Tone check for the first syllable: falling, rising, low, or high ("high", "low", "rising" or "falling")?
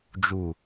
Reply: low